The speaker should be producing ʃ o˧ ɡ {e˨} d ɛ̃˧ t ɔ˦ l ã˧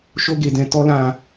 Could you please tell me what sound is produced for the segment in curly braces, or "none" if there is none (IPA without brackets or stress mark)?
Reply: e˨